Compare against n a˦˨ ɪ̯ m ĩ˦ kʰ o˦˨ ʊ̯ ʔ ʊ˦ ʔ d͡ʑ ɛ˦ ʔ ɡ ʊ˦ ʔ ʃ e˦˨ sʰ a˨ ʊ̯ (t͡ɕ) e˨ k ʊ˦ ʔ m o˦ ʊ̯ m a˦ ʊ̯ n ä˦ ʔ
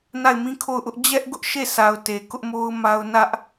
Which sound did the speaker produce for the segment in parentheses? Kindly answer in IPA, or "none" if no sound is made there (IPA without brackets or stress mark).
t